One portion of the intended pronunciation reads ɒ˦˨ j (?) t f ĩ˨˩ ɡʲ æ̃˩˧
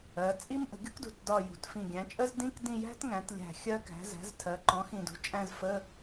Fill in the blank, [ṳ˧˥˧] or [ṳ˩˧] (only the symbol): ṳ˩˧